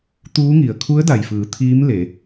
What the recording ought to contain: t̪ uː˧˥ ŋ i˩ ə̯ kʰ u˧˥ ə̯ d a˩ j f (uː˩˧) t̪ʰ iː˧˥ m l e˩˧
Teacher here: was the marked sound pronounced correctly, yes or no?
no